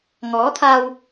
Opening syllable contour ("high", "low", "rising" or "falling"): rising